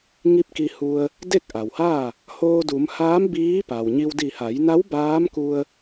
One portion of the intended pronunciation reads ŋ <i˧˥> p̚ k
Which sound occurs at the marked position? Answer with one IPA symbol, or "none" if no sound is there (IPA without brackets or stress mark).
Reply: i˧˥